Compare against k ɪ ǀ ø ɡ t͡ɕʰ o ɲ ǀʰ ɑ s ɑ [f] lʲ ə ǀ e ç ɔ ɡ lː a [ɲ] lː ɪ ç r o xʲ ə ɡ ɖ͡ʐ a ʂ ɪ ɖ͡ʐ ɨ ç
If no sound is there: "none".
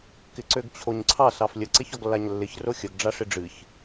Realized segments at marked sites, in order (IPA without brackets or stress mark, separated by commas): f, ɲ